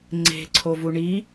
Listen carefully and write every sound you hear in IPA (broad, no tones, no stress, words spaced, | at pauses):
ŋ͡ǀe̤ǀʰovu ɳi